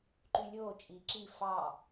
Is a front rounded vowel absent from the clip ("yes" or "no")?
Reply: no